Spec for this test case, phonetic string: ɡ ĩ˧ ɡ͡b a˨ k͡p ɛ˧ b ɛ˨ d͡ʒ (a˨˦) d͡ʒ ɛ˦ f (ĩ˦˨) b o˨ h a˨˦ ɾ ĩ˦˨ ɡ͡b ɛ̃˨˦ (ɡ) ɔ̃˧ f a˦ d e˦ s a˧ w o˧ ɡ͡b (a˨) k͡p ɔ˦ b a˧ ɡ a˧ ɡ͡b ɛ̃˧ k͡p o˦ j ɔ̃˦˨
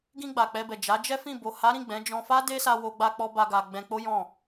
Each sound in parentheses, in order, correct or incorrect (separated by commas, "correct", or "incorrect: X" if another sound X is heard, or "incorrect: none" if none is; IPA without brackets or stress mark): correct, correct, incorrect: d͡ʒ, incorrect: a˧